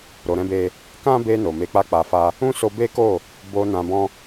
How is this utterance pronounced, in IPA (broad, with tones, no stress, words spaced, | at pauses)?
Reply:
ɾo˧ɾɛ̃˦be˦ | kã˦be˧ no˨ me˧k͡pa˦k͡pa˧fa˦ | ũ˦so˧be˦ko˦˨ | bo˧nã˧ bɔ̃˦